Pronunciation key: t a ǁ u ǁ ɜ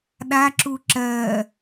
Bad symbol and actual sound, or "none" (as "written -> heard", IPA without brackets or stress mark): t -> ɗ